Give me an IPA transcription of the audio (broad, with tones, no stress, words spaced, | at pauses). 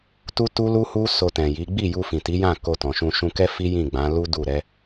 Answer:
tu˦tu˦lu˦hu˦ so˧tɛ̃˨ji˨˦ ɡ͡bi˦˨ju˧ fĩ˨ti˨˦jã˦˨ ko˧tɔ̃˨ʃũ˧ ʃũ˧kɛ˦fi˦ jĩ˦˨ ɡ͡bã˨˦ lu˦ du˦˨ ɾɛ˨˦